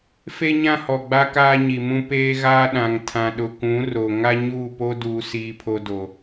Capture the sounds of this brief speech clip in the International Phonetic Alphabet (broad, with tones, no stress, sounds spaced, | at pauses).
f e˦ ɲ ã˦ h ɔ˨ ɡ͡b a˦ k aː˦ ɲ i˨ m ũ˦ p eː˦ ɣ aː˦ ɗ ã˨ ŋ tʰ ã˨ ɗ ʊ˨ k ũ˨˦ r o˨ ŋ a˦ ɲ uː˦˨ p o˦ d uː˨ s iː˦ pʰ o˦ d o˨